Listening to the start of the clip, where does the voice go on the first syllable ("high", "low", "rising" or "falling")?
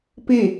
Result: falling